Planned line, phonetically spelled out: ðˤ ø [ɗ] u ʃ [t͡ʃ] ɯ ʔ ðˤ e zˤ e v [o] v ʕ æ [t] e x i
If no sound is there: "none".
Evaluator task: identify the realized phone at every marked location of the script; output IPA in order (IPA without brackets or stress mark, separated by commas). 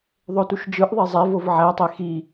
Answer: t, d͡ʒ, o, tˤ